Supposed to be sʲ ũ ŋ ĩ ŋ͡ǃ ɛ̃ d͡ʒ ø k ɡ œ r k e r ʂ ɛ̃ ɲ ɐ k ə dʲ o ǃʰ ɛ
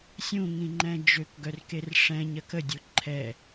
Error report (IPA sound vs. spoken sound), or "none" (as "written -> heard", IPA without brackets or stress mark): none